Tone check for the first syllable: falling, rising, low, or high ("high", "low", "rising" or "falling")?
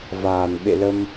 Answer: low